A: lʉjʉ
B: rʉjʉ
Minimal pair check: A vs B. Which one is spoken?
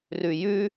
B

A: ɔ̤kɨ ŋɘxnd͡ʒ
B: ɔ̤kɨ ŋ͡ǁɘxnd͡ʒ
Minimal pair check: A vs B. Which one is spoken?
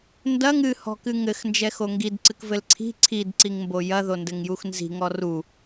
A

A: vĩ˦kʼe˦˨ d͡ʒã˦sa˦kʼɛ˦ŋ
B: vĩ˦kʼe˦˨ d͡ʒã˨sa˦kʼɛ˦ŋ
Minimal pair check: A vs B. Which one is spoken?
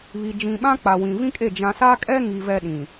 B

